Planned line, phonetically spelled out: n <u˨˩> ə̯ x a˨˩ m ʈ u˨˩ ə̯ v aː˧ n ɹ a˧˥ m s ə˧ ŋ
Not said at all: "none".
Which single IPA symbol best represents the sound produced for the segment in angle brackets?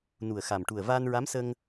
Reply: u˨˩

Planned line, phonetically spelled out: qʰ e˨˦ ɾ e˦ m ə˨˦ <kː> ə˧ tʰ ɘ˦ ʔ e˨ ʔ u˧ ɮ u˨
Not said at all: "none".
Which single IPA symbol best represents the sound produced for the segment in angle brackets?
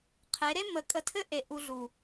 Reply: kʼ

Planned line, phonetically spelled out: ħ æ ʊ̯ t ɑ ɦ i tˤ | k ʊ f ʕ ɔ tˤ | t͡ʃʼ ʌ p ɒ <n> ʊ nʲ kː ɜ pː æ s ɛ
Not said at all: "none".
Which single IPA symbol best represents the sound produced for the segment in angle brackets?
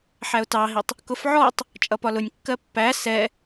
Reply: l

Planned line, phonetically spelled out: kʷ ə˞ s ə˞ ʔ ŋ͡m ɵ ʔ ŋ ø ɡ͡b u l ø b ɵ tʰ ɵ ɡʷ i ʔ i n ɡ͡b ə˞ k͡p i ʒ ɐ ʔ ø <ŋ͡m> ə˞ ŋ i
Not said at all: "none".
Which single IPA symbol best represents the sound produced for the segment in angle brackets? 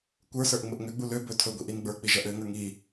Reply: ŋ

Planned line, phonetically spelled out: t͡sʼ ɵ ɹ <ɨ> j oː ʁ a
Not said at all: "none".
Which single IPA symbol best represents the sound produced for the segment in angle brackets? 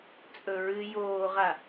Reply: ɨ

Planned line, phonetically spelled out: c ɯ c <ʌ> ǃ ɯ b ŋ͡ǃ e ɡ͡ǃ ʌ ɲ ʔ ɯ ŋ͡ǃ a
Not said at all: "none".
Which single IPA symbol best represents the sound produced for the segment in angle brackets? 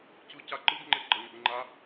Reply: a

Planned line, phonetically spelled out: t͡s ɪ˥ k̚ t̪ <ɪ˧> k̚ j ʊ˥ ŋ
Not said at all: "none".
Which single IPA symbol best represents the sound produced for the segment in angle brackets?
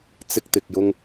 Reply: ɪ˧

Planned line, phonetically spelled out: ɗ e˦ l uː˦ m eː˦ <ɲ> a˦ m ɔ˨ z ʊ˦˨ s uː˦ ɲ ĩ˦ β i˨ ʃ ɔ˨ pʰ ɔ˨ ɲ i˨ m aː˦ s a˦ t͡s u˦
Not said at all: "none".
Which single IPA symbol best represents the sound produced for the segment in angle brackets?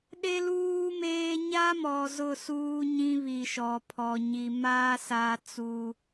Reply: ɲ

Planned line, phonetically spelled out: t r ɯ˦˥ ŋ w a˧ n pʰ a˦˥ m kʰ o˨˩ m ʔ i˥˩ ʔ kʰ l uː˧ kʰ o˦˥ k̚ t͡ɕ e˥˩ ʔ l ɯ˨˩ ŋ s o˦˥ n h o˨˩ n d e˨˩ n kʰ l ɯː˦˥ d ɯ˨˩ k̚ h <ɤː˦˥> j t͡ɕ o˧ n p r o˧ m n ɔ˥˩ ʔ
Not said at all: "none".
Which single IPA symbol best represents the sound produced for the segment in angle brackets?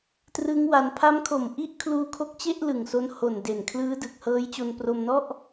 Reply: ɤː˦˥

